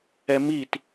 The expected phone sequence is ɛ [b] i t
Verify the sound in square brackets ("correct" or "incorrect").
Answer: incorrect